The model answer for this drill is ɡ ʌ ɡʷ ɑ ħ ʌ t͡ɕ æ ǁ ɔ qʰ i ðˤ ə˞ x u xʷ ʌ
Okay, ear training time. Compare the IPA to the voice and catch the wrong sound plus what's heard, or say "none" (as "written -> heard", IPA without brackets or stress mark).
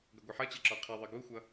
x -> ɡ